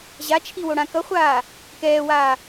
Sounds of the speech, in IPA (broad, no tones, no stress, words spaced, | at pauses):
ʑat͡ʃʰiwoɽã kʌχʷaː | kɛːwaː